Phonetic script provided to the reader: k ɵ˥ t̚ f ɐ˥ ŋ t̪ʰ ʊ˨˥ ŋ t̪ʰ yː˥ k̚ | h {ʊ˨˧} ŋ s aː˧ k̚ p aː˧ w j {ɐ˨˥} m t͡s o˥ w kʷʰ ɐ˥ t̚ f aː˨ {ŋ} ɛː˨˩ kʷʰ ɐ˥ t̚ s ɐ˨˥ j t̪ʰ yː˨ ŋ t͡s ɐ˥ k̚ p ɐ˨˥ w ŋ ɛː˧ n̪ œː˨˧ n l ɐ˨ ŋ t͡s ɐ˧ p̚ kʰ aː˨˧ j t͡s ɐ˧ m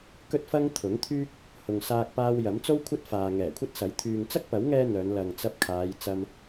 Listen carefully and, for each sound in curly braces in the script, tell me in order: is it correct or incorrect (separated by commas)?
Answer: incorrect, correct, correct